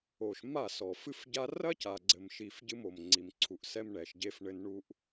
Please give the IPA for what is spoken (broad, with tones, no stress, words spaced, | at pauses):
o˨ʃ ma˦˨sɔ˨fɨ˦fɟa˦ rɐ˦ca˨ɡ͡ǀɘ˨mʃi˨f ɟɨ˦mo˨mŋ͡ǀi˨mǀʰu˨ʔ sɛ˦mɳɛ˨ʃ ɟe˦fɳɘ˦n ɳu˦ʔ